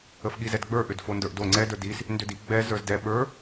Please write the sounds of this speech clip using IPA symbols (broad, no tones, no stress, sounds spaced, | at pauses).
ə f ɠ i z ɛ d ɡ͡b ə˞ ʔ ʏ d f o n d ə˞ ʔ d o ŋ͡ǀ ɛ d ə˞ d i s | n d ʏ d i ɡ͡b ɛ z ə˞ z d ɛ ɓ ə˞